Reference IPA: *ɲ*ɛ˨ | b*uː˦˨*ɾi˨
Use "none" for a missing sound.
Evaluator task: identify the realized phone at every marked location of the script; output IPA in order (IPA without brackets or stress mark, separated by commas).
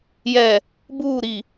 j, uː˦˨